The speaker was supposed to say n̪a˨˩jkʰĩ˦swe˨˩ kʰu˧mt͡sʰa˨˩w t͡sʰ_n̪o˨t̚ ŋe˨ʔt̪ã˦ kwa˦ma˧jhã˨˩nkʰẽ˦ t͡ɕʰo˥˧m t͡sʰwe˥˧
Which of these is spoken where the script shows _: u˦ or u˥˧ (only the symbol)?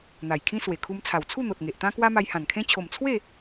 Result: u˥˧